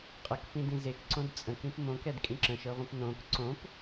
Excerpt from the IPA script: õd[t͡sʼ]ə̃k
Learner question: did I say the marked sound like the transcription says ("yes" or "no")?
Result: yes